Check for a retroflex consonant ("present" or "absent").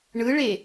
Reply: present